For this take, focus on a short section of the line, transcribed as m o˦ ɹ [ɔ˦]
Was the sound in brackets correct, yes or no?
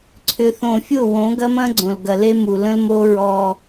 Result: yes